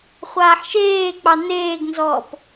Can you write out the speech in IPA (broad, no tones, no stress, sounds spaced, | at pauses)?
χʷ aː ħ ʃ eː k͡p ɑ n eː ɡ n z ɔː p